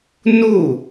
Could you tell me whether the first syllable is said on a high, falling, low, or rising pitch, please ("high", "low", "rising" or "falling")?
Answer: falling